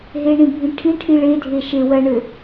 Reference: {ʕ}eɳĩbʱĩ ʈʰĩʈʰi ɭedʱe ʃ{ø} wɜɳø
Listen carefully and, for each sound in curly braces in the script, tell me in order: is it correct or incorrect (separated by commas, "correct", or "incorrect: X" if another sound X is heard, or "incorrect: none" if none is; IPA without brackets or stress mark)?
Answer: incorrect: ɦ, incorrect: e